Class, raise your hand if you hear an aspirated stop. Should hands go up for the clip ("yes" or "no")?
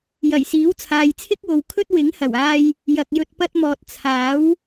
yes